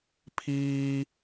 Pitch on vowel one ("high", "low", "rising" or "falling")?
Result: low